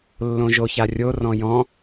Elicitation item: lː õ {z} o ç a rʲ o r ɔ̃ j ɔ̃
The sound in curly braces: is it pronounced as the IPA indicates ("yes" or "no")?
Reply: no